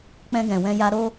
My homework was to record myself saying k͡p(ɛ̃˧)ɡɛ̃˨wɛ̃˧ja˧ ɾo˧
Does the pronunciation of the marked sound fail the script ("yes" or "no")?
no